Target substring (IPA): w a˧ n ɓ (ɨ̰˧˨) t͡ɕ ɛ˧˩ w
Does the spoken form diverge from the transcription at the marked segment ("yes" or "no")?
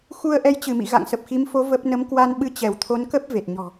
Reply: yes